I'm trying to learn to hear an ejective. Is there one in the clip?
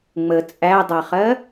yes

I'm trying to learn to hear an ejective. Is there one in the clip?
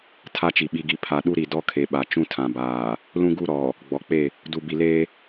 no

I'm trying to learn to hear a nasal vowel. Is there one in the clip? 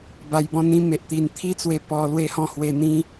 yes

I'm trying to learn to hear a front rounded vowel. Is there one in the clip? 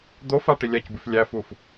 no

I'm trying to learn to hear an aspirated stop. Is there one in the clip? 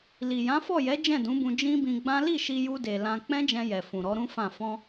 no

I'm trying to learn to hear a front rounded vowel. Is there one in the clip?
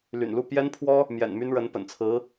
yes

